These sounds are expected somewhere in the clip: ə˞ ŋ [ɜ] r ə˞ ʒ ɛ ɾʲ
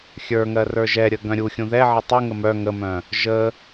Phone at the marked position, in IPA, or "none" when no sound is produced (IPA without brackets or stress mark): ɜ